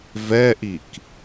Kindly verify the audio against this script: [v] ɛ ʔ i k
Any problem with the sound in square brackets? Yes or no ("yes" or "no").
no